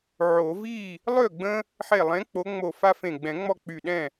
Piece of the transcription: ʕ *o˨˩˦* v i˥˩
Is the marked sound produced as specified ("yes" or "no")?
yes